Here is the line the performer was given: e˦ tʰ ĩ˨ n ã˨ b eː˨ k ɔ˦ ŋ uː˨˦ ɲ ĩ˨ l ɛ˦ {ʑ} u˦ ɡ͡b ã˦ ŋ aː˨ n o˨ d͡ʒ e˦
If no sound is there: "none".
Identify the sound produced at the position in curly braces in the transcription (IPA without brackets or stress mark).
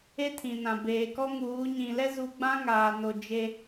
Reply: z